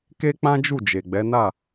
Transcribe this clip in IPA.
k e˦ k͡p ã˦ d͡ʒ u˦˨ d͡ʒ e˨ ɡ͡b ɛ˨˦ n a˦˨

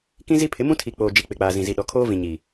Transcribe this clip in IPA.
k ĩ˦ z i˦ pʰ ɪ˨˦ m ũ˦ tʰ i˨ k͡p oː˨ d͡ʒ i˨ k͡p ɪ˨ k͡p aː˨ z ĩ˨ z i˨ ɗ ɔ˨ kʰ oː˦ v ĩ˨ ɲ i˨

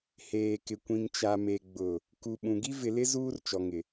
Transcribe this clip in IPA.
h eː˨ k ɪ˨ kʷ ĩ˨ ŋ t͡ʃ a˨ m e˨ ɡ͡b ʊ˨ | k u˨ ɓ ũ˨ ɡ i˦ v ɪ˨ l ɪ˦ z uː˦ r t͡ʃ ɔ˨ ŋ ɪ˨

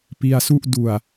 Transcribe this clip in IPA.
p i˧ a̯ s u˥˩ ʔ d u˨˩ a̯

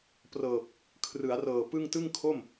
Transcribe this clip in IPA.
p r ɤː˨˩ p̚ | kʰ r ɯ˩˦ a̯ r ɤː˨˩ p ɯ˥˩ ŋ t ɯ˥˩ ŋ kʰ o˥˩ m

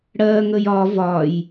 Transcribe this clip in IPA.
ɽ ɜ ŋ ə j ɒ v ɒ j

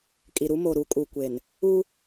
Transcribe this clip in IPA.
kʼ i˨ ɾ u˦ m o˨ ɾ u˨˦ kʼ u˨ kʷ e˨ n | u˦

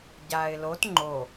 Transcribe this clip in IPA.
ɟ a ɪ̯ l o t ŋ͡ǃ o

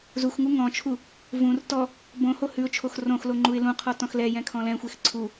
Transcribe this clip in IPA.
z u x ŋ u ŋ ɔ̃ t͡ʃʰ u | v ũ r t ɔ | b õ h o h ʉ ʊ̯ t͡ʃʰ o x r õ x l o ŋ͡ǃ u ɪ̯ l ũ qʰ ɔ t ɔ̃ x l ɛ j ɛ̃ kʰ ɔ̃ l ɛ̃ xʷ e x ǀʰ u

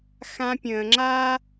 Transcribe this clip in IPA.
x ã˧ pʲ ə̃ː˨ ŋ͡ǁ a˦

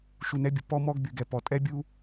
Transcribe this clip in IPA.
ʃ u˨ n ɛ˨˦ bʲ ə˨ p ɔ˧ m ɔ˧ ɡ b y˨ ɡ ɛ˨ p ɔ˨ tʼ ɛ˦ bʲ u˦

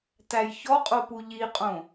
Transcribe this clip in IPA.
t æ j ç ɔ qʼ o p u ʎ i qʼ õ

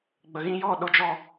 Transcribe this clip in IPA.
ɡ͡b ə˧ ɣ ĩ˦ j ɔ˦˨ ɗ o˦ d͡ʒ ɔ˦

